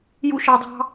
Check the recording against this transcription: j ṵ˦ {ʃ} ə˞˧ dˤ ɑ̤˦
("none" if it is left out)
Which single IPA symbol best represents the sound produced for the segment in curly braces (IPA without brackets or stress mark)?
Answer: ʃ